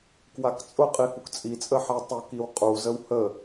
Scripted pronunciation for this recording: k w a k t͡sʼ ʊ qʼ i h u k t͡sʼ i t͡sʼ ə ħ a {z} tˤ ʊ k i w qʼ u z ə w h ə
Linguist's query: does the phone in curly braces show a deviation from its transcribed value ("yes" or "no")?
yes